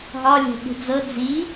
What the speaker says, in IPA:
ɦ ɒ lʲ o̤ ɓ ṳ d͡z ɤ d͡z i

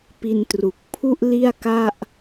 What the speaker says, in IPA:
p i˧ n t r u˨˩ k̚ pʰ u˥˩ ʔ l i˥˩ a̯ k a˥˩ ʔ

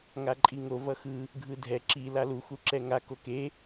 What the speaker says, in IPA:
ŋ a ǃʼ i ŋ o v ʌ x ɯ | ɡʱ ɯ dʱ ɛ ǁ i l a l u x u ǁ ɛ ŋ a k o k e

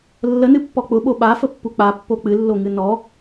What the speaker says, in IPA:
lː ə n ɨ pː ɔ k͡p ʊ ɓ o ɓ a f ə pː u k͡p a pː o k͡p ɨ lː o ŋ ɨ n ɔ

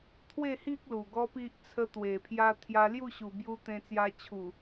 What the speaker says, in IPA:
t̪ʰ w e˥˧ h i˦ k̚ l u˨˩ ɡ ɔ˦ p i˦ ʔ t͡sʰ ə˦ t̪ w e˨˩ pʰ j a˧ t̪ʰ j a˧ l j u˥˧ ɕ u˨˩ b j u˧ t̪ ẽ˧ t͡s j a˧ t͡ɕʰ u˨˩

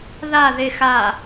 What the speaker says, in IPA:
ð a ð e x a

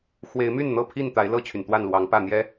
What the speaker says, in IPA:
x w e˨˦ ɪ̯ m y˥˨ n n̪ ɤ˥˨ pʰ i˥˨ n t̪ a˨˦ ɪ̯ l ɤ˥˨ t͡ɕʰ y˩ n t̪ w a˥˨ n l w ɑ˨˦ ŋ p ä˥˨ n̪ j ɛ˦

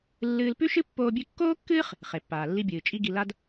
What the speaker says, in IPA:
lː ɨː˧ l p ʉ˥ ʃ ɨ˥ pː oː˧ bʲ ʉ˧ kː oː˥ kː ɨː˥ χ | χ e˩ pː aː˩ lː i˧ bʲ ɨː˩ t͡ʃʼ i˧ ɡ i˧ l a˥ d

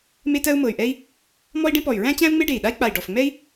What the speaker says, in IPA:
m e˥ t ɜ˥ u̯ m ɤ˧˩ y̯ ʔ ɛ˥ i̯ | m ɔ˥ i̯ ɖ ẽ˥ p ɔ˧˩ y̯ ɹ æ̃˥ t͡ɕ æ̃˥ u̯ ŋ͡m e˥ ɖ e˧˩ i̯ ɗ a˥ i̯ k͡p a˧˩ i̯ ɖ ɔ˧˩ f ŋ͡m ɛ˥ i̯

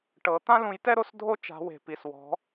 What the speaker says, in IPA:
ʈ ɤ˨˦ t̪ ã˥ l ũ˨˦ j t ɛ˥ ɾ o˥ s dʱ o˥ t͡ʃ a̤˨˦ w e̤˨˩ p i˨˩ s w ɔ̤˨˦

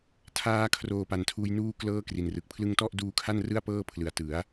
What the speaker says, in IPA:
tʰ aː˧ kʰ r oː˨˩ p a˨˩ n tʰ uː˧ j n uː˥˩ k l ɤː˥˩ k r i˨˩ n r ɯ˨˩ k̚ pʰ l ɯ˧ ŋ t ɔ˥˩ ʔ d uː˧ kʰ a˥˩ n r ɯ˥˩ a̯ p ɤː˥˩ pʰ l ɯ˩˦ a̯ t ɯ˩˦ a̯

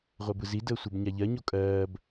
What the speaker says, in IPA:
ʁʷ ɜ b ɯ z i d əː sʷ e b ɲ a ʎ ɜ ɲ o kʼ ɜː b

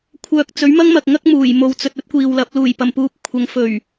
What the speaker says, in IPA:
kʷʰ œː˨ k̚ t͡s ɵ˨˥ ɥ m ɐ˥ ŋ m ɐ˨ k̚ ŋ ɐ˥ k̚ m uː˨˩ j m o˨ w t͡s ɵ˨ t̚ ɵ˥ t̚ kʷ iː˨ w l ɐ˨˥ p̚ l uː˨˩ j p ɐ˨˩ m p uː˨ p̚ kʷʰ ɐ˨˧ ŋ f ɵ˨˩ ɥ

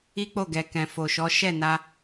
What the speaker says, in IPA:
i˦ k͡p o˦˨ ɡ ɛ˨ k ɛ̃˨ f o˨ ʃ ɔ˨˦ ʃ ɛ˦˨ n a˧

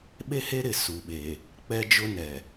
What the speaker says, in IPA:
ɓ e˦ h e˦ ɾ ɪ˨ s u˨ ɓ e˨ | k͡p ɛ˦ d͡ʒ ʊ˦ n ɛ˨

